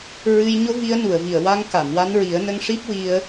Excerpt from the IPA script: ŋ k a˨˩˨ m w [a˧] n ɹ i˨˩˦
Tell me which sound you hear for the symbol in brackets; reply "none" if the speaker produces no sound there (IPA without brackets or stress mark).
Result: a˧